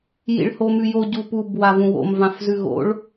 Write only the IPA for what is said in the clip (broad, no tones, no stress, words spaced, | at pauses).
jḭɭhomʉjo ɟupub wavũwo̰m vãfzʉɣo̰ɭ